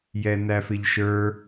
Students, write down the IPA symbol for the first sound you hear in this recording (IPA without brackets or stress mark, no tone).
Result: j